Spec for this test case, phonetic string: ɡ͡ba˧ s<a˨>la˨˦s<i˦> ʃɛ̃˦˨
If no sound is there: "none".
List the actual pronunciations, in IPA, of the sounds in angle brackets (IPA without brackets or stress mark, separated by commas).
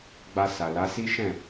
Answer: a˨, i˦